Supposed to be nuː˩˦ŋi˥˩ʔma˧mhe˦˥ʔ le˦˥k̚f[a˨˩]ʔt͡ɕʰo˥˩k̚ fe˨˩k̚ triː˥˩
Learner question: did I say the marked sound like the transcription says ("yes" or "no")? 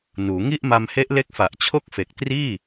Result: yes